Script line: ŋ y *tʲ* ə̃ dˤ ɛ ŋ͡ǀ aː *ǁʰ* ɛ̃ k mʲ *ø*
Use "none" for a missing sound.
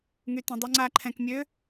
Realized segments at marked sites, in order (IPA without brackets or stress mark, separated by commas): t, ǃʰ, ø